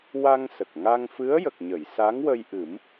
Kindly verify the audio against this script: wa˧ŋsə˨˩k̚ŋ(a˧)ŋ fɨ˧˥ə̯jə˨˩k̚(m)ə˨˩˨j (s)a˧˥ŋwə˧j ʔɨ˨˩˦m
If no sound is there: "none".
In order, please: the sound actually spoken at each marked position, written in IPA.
a˧, ɲ, s

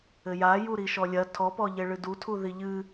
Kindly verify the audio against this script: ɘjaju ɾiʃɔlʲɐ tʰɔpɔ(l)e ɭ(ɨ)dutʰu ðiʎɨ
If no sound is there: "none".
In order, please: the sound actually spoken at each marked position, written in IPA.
ʎ, ɨ

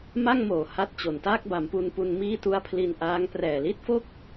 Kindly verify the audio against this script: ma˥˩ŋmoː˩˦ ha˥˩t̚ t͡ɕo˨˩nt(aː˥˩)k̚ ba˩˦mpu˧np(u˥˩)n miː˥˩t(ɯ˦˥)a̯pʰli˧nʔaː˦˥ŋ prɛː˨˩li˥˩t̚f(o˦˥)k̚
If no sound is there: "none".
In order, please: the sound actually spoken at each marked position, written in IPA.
aː˥˩, u˧, u˦˥, o˥˩

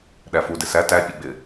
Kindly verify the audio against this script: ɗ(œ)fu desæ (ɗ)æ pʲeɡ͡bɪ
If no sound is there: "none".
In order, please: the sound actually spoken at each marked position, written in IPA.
æ, t

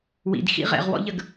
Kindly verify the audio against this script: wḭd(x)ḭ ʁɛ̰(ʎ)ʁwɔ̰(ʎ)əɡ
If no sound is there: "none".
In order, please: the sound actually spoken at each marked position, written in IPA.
x, none, ʎ

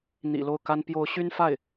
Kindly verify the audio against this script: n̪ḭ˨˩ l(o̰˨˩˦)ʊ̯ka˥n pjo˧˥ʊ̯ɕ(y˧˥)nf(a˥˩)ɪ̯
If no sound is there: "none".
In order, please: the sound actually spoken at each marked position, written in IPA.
o˥˩, y˥, a˥˩

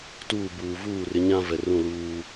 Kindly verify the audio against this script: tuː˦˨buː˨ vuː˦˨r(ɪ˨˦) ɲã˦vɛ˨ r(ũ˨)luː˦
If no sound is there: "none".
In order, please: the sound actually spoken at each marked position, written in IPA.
ɪ˨˦, ũ˦˨

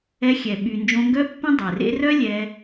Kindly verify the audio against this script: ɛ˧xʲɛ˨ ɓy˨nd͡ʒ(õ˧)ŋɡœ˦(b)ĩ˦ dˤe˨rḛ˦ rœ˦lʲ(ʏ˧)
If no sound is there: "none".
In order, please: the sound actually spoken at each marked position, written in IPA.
õ˧, pː, ɛ˧

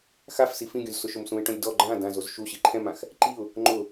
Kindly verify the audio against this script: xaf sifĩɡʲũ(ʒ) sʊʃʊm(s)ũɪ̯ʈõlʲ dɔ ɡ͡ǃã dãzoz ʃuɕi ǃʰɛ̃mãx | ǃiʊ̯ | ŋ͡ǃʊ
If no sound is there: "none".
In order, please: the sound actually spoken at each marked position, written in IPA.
z, s

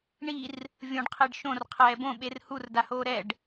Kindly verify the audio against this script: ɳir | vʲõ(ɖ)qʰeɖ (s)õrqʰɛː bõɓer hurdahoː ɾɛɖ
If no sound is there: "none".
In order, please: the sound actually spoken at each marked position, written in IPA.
ɖ, ʃ

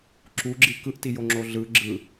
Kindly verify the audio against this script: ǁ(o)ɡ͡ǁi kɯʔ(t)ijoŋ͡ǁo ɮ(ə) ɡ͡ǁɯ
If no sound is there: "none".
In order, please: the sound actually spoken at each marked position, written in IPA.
u, t, ɯ

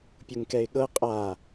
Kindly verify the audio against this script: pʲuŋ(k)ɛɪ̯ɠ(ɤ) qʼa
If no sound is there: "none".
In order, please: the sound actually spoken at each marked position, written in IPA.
k, ɤ

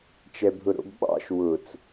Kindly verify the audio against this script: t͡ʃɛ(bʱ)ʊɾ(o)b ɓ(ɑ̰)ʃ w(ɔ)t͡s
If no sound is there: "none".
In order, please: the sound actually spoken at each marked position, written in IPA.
bʱ, o̰, ɑ̰, ʊ

